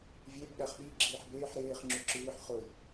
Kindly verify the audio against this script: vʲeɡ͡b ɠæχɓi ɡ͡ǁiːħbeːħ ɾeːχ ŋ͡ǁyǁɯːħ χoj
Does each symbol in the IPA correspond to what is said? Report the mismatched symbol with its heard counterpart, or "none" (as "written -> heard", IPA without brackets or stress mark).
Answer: ɡ͡b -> b